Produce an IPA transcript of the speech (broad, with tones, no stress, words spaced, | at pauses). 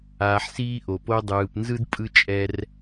aː˨ħsiː˦ʔo˩po˦ dˤɯː˨pnzɯ˥dpʼɯ˦ t͡ʃʼɛ˥r